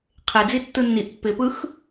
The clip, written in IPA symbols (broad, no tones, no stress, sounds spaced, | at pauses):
qʰ e d͡z i tː ɯ nː i ʔ pː ɪ p ɯ x